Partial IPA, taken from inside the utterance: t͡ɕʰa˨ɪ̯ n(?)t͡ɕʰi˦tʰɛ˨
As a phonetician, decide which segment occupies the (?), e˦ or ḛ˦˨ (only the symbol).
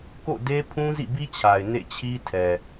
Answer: ḛ˦˨